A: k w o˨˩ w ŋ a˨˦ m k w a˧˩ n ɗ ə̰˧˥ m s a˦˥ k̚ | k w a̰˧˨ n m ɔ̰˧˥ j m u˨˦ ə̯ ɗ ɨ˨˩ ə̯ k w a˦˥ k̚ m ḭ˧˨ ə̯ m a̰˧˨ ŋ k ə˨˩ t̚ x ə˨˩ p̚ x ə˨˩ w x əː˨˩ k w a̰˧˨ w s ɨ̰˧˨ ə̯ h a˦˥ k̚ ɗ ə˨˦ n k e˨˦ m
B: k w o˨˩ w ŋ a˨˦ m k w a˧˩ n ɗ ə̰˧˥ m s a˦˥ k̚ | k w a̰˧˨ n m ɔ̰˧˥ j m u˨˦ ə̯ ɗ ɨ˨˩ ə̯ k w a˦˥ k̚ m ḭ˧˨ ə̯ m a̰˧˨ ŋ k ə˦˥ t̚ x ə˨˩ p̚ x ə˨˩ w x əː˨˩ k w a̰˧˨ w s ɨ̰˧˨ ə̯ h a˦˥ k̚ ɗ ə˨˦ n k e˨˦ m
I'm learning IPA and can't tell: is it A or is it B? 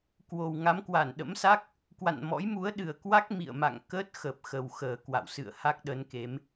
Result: B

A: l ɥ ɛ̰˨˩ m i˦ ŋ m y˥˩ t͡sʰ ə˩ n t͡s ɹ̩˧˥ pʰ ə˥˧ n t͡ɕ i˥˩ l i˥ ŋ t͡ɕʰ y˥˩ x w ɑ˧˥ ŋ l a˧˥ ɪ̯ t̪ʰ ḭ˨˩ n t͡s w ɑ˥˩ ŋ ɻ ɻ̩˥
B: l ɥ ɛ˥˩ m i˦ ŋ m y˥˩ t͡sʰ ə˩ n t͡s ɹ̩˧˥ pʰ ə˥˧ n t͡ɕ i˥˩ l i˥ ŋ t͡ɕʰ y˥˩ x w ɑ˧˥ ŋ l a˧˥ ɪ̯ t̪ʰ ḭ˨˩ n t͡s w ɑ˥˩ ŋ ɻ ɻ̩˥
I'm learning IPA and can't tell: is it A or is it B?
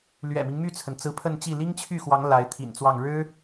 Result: A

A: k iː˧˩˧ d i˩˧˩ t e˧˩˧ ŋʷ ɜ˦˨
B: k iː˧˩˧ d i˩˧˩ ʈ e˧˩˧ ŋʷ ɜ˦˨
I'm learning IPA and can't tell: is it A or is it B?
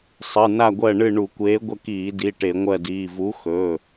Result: B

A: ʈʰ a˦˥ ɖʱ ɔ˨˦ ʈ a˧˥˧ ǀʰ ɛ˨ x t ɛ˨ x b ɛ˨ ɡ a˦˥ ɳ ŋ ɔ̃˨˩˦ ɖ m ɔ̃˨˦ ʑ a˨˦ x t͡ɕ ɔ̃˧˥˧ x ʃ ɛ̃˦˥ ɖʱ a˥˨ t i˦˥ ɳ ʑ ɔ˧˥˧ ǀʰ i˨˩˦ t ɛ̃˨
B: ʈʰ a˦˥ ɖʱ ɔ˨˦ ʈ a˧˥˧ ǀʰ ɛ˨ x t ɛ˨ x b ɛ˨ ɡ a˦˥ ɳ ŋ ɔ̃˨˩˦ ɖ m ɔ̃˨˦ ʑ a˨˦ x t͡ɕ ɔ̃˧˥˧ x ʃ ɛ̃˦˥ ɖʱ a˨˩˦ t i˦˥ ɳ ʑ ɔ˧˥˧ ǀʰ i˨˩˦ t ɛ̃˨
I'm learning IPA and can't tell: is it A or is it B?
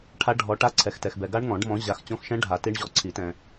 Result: B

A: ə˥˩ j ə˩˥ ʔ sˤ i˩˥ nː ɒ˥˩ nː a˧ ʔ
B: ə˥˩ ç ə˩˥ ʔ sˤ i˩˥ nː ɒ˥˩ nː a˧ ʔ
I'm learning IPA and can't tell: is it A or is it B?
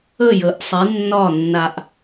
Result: A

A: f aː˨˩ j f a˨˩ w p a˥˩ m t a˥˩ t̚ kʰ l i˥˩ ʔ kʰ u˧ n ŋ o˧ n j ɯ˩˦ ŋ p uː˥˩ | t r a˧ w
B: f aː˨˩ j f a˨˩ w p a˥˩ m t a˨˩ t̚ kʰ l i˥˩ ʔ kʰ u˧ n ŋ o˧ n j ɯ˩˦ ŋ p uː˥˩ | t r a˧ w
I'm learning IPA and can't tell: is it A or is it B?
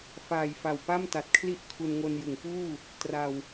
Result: B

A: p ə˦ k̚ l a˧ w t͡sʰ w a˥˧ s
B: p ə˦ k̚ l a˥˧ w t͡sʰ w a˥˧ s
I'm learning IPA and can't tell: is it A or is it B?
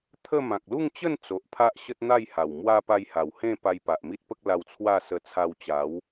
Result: A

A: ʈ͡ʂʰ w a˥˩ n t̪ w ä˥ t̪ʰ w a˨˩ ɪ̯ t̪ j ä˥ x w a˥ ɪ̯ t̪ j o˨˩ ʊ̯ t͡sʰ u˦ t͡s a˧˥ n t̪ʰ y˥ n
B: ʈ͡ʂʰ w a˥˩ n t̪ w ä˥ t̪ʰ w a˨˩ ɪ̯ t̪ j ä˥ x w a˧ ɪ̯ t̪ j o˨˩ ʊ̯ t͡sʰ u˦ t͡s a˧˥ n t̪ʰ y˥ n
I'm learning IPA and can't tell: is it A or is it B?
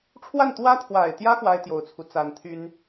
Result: A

